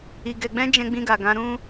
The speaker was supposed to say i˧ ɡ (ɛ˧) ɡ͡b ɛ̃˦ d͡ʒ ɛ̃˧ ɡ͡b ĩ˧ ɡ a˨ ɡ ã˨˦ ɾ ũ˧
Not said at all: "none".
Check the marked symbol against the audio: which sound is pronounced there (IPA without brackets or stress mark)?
ɛ˧